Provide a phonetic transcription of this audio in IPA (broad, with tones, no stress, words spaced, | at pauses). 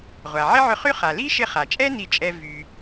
ʁʷa˩ʕɪ˥ʕʏ˧χy˥ χa˩ li˥ʃɪ˧χa˩t͡ʃʼɛ˥ ni˧t͡ʃʼɛ˧ vy˩